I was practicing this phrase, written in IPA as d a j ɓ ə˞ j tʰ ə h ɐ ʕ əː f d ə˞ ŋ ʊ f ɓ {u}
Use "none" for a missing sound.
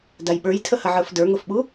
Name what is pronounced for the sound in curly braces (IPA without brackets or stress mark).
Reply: u